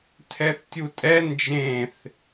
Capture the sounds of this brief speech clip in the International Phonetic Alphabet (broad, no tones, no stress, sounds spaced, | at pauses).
tʰ ɛ θ tʲ u tʼ ɛ n d͡ʒ ẽ θ